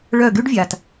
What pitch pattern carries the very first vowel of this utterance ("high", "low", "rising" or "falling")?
falling